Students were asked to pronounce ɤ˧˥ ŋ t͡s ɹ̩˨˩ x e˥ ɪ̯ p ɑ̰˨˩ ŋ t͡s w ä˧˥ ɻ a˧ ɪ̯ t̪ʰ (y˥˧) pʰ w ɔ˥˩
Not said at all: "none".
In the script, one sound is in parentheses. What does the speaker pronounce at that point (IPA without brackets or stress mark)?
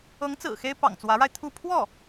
u˥˧